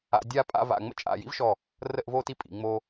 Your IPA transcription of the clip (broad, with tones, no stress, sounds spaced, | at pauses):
a̰˧ dʲ a˥˧ pʼ a̰˥˧ v a̰˧˩ ŋ͡m ə̰˥˧ t͡ʃʼ a̰˧˩ j ḭ˥ v ʃ ɔ˧˩ | r ə˥˧ ʔ v o˥˧ t i˥ pʼ ḭ˩˧ ŋ͡m o˧